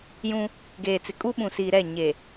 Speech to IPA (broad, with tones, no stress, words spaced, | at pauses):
jũ˦ | ɡeː˨t͡sɪ˨ kʼu˦ɓũ˨siː˨ ɾɛ˦˨ ɲe˨